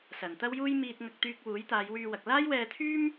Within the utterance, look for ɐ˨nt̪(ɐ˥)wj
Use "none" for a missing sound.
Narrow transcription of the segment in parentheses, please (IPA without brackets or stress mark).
ɐ˥